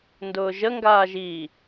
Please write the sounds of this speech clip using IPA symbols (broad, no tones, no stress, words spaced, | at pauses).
ndʊːʒə ŋɡaːʒi